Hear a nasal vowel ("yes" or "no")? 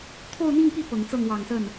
no